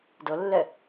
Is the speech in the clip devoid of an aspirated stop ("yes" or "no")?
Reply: yes